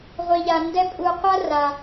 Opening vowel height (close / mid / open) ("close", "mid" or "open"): close